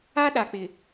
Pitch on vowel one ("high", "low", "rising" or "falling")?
high